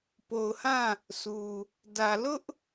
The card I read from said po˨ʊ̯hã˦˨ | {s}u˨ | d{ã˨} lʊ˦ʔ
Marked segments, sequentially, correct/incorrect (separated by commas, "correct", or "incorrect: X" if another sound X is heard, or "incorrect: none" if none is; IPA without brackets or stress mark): correct, incorrect: ä˨